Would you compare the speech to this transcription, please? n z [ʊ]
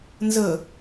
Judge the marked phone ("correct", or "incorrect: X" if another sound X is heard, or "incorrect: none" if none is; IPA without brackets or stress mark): incorrect: ə